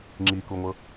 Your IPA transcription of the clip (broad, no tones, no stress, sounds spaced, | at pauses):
ŋ͡ǁ i k u ŋʷ ɤ